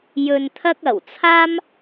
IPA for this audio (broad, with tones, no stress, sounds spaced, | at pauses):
j ɵ˧ n t̪ʰ ɐ˥ k̚ ɐ˨˩ w t͡sʰ aː˥ m